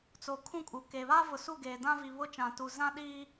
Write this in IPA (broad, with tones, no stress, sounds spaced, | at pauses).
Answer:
t͡s o˨ kʰ ũ˦ kʼ u˨ k eː˨ β aː˦ v ʊ˨ s u˦˨ ɡ eː˨ d ã˦ v i˨ β ʊ˦ t͡ʃ ã˨ t u˨ z ã˦ ɗ iː˦